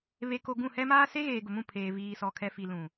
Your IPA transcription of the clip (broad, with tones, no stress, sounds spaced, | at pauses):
β e˨ k o˨ ɡ ũ˦˨ h ɛ˦ m aː˦ s e˦ ɣ eː˨ ɡ ʊ˨ m ũ˦˨ pʰ eː˨ v iː˨ s ɔ˨ kʰ ɛ˨ f i˨ l ũ˨